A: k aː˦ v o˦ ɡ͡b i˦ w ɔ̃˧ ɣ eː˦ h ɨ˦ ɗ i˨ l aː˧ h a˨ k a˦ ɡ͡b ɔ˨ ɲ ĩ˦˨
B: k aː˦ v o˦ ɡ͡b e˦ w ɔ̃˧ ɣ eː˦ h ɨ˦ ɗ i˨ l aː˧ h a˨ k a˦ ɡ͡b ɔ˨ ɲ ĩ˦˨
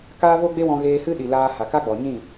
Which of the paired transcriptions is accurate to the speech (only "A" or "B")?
B